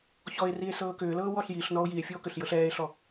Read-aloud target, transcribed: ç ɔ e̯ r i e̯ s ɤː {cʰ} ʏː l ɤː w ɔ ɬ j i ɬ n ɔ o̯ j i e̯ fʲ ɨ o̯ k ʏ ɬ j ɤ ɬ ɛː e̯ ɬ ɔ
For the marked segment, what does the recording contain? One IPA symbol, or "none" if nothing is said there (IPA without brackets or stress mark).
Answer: k